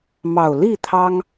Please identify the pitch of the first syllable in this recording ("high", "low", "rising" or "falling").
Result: low